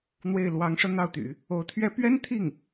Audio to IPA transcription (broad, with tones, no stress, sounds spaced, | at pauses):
n̪ w e˥˩ ɪ̯ l w ɑ˧˥ ŋ ʂ ɤ˧ n̪ ɑ˥˩ ʊ̯ t̪ y̰˨˩˦ | o˧˥ ʊ̯ t̪ʰ ɥ ɛ˥ p ɥ ɛ˥ n t̪ʰ i˥˩ ŋ